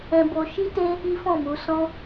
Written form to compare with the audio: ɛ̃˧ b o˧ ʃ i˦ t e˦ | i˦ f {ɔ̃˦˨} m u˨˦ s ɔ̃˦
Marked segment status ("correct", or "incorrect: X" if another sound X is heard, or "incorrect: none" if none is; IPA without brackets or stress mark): correct